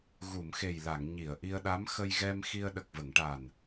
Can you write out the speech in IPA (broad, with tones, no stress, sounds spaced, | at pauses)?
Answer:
ɣ u˨˩˨ m x e˨˩ j l a˨˩˨ ŋ ɲ i˨˩˨ ə̯ ʔ i˧ ə̯ ɗ a˧˥ m x ə˧ j ɣ ɛ˧ m x i˧ ə̯ ɗ ə˨˩ k̚ v ə˨˩˨ ŋ ʈ a˨˩ n